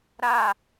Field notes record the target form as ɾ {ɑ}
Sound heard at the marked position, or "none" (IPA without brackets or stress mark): a